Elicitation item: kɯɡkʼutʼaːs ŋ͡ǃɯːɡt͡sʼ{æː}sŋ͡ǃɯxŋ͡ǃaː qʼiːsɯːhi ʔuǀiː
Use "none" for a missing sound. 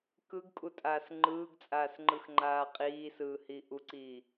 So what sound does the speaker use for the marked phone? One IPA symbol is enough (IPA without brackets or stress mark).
aː